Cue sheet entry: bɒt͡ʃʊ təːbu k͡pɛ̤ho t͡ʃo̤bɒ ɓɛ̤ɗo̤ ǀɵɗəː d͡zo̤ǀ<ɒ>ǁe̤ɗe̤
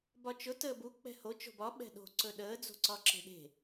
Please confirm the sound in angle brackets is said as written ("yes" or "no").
yes